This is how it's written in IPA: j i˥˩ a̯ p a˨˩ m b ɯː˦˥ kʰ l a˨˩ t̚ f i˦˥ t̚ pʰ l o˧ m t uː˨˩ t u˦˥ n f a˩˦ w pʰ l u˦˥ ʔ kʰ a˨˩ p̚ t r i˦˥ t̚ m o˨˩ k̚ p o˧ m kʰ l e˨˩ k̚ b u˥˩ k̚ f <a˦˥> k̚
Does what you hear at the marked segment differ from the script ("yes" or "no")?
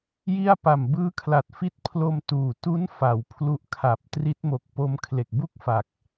yes